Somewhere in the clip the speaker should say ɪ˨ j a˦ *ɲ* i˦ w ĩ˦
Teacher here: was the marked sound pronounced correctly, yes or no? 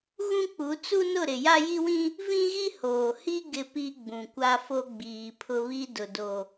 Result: no